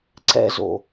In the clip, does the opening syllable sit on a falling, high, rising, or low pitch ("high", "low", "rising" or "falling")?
high